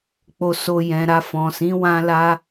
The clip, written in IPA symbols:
k͡p o˧ s o˧ j ɛ̃˨ ɾ a˧ f ɔ̃˨ s ĩ˨˦ w ã˦ l a˦

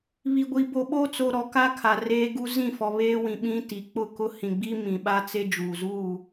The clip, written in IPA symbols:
β i˨ ɡʷ i˨ b o˨ ɓ o˦ t͡s o˨ ɾ ɔ˨ k a˦ kʰ a˨ r eː˦ ɡ u˦ z ĩ˦˨ f ɔ˨ β eː˦ w ĩ˨ ɓ ĩ˦ t i˨ k͡p ʊ˦˨ k ʊ˦ h ĩ˨ ɡ͡b i˦ m ĩ˨ ɓ a˦ t͡s e˦ d͡ʒ uː˨ z uː˦˨

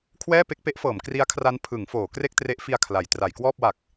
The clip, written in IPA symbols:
kʰ w ɛː˥˩ p e˥˩ k̚ p e˦˥ ʔ f ɤː˩˦ m k r i˦˥ a̯ kʰ r a˦˥ n pʰ ɯ˩˦ ŋ f oː˩˦ k r e˥˩ k̚ t r e˦˥ ʔ f i˧ a̯ kʰ l a˩˦ j t r a˩˦ j k w ɔː˥˩ p̚ w a˨˩ k̚

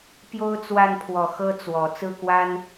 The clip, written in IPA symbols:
p j o˥ ʊ̯ t͡s w a˥˩ n pʰ w ɔ˨˩ x ɤ˥ t͡s w ɔ˨˩ t͡s ɹ̩˥˩ k w a˥ n

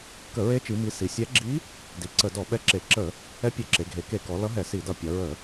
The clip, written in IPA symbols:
k ə˧˩˧ ɹ e˧˥ t͡ʃ i˧˥ m i˧˥ s i˩˧ sʲ ɛ˧˥ ɡ͡ǁ i˧˥ | d i˩˧ ǀ ə˧˩˧ d ɔ˧˩˧ ɓ ɛ˧˥ ǁ e˧˩˧ ǁ ə˧˩˧ | ɛ˧˥ pʲ e˧˩˧ ǁ e˩˧ ɡʱ e˩˧ k e˧˩˧ k ɔ˩˧ l ʌ˧˥ ɦ ɛ˧˩˧ s i˧˩˧ d ʌ˧˩˧ pʲ ʌ˩˧ ɹ ə˧˩˧

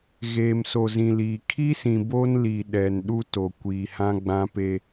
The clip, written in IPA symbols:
ɣ eː˨ m s o˨ z ĩ˨ l iː˨ kʰ i˦ s ĩ˨ b o˦ n l i˨ ɗ ɛ˨ n ɗ u˦ t o˨ kʷ iː˨ h ã˦ ɡ͡b ã˦ p e˦

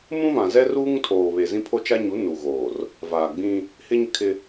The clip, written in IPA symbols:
m ũ˦ v ã˨ z ɛ˦ r uː˦ ŋ tʰ oː˨ β e˨ z ĩ˦ pʰ o˦ t͡ʃ a˦ ɲ u˨˦ n u˨ ɣ oː˨ r | v aː˨ ɡ͡b ĩ˦ | h ɪ˦ ɲ ɪ˦ kʰ ɪ˦

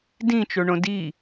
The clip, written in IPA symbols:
d ĩ t͡ʃ o ɳ õ d i

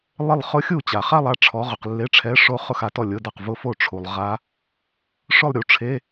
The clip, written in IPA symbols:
lˠ ɪ˥˧ lˠ χ ʊ˦˥ xʲ u˥˩ t͡ɕ a˨ χ a˥˧ lˠ a˥˩ ʈ͡ʂʰ ɔ˨˦ ʁ ʊ˨ q lː e˧˥˧ ʈ͡ʂʰ ɛ˧˥˧ ʂ o˦˥ χ ʊ˥˧ x a˨˦ t ɔ˥˩ lʲ ʊ˧˥˧ d a˥˩ q v ʊ˦˥ f o˥˩ ʈ͡ʂʰ u˨ lˠ ʁ a˦˥ | ʂ ʊ˥˧ lˠ ɾʲ u˨˦ ʈ͡ʂʰ e˧˥˧

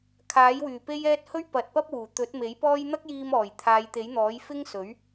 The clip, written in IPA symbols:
kʰ aː˨˥ j w yː˨˩ p e˥ j ɛː˥ t̚ h ɵ˥ ɥ p ɐ˨ t̚ p ɐ˥ p̚ w uː˨˩ t̪ ɵ˨˥ t̚ m e˨˥ j p ɔː˥ j n̪ ɐ˥ k̚ j iː˧ m ɔː˨˩ j t̪ʰ aː˨˧ j t̪ e˨˥ j n̪ ɔː˨˥ j f ɪ˥ ŋ s ɵ˨˥ ɥ

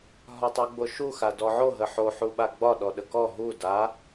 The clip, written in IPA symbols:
ɦ ɒ tˤ u ɡ͡b o ʃ u x a d ɔ ʕ o ɦ ə ħ o ħ u ɓ a ɡ͡b ɒ ɗ ɔ ɗ ə k ɔ ɦ u d a

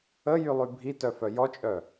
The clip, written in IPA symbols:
ə j y lˠ y bʱ i t œ f œ j ɔ t͡ʃʼ œ

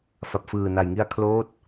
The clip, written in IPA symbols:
f a˨˩ p̚ f ɯː˨˩ n a˨˩ j ŋ i˧ a̯ kʰ l oː˦˥ t̚

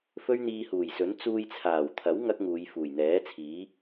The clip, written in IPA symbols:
f ɵ˥ ɥ n̪ iː˧ h uː˨˩ j s ɵ˨˥ n t͡s uː˧ j t͡sʰ aː˨˩ w t̪ʰ ɐ˨˥ w ŋ ɐ˥ k̚ ŋ uː˨˧ j f uː˨˩ j n̪ ɛː˨˥ t͡sʰ iː˨˥

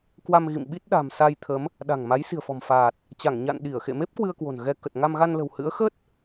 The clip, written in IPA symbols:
k w a˧ m ɣ ḭ˧˨ m ɓ i˦˥ t̚ ɗ a̤˨˩ m s a˧ j t̪ʰ ə˨˦ m | ɗ a̤˨˩ ŋ m a˨˦ j s i̤˨˩ ə̯ f ɔ̤˨˩ m f aː˨˩ t̚ | t͡ɕ a˧˩ ŋ ɲ a̰˧˨ n ɗ i˧˩ ə̯ x ḛ˧˨ m e˦˥ p̚ k w ɨ˧ ə̯ k w o̤˨˩ n ɣ ɛ˧ k ə˨˩ t̚ ŋ a˧ m ɣ a˧ n l ə̤˨˩ w h ɨ̰˧˥ ə̯ x ə˦˥ t̚

